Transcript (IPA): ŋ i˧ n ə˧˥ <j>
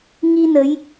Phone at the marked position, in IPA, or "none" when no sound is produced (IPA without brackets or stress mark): j